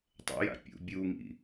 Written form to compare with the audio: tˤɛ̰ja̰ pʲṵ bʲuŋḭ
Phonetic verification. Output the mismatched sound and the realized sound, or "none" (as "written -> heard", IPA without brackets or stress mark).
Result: none